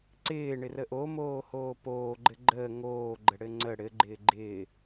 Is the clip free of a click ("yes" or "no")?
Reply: no